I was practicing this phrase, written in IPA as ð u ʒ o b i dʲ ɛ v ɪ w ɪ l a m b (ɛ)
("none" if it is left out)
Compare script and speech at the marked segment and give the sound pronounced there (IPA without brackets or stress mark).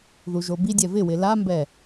ɛ